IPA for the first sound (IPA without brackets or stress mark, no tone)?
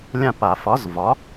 lʲ